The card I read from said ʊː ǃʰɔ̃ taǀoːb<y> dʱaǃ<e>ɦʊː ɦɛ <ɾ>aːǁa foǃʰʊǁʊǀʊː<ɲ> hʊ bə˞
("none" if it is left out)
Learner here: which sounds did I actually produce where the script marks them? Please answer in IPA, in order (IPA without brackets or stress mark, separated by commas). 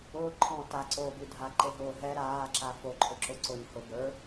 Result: y, e, ɾ, ɲ